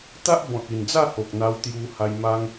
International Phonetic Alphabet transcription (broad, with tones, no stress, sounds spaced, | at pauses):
t̪ a˦ ʔ b ɔ̃˨ t̚ i˨˩ n d͡z a˥˧ h o˨ k̚ n̪ a˧ w t̪ j u˧ h a˧ j m a˦ ŋ